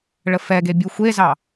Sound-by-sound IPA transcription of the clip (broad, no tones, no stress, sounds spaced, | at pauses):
ɭ ə f ɛ ɡ e bʲ u xʷ e z ɑ